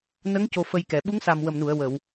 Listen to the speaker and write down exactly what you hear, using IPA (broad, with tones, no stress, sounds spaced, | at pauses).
n ə˧˥ ŋ c o˧ f ə˧ j k ɛ˨˩˨ ɓ u˧˥ ŋ s a˨˩ m w ə˨˩ m n u˨˩˨ ə̯ w ə˨˩˨ w